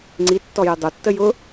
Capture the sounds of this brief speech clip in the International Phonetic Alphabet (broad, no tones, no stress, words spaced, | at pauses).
ŋ͡ǀi tːɔjʊdˤo tːəjʊ